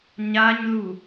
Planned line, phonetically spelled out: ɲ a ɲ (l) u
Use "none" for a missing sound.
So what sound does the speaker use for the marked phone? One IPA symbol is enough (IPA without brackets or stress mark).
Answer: l